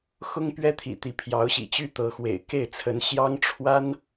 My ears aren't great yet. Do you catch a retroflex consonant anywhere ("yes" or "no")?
yes